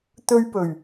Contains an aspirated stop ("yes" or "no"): no